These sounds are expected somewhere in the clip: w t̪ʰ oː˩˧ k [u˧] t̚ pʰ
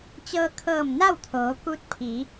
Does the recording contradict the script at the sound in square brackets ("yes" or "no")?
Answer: yes